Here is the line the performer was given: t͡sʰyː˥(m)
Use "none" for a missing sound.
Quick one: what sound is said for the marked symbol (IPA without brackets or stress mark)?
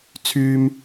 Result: m